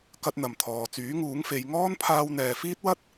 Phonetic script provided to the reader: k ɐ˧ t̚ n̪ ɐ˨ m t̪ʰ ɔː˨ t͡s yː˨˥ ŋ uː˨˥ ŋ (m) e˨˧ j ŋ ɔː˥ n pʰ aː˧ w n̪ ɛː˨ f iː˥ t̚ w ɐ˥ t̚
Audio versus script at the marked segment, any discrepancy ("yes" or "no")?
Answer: yes